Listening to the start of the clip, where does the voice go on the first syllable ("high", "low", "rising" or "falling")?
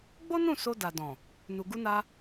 high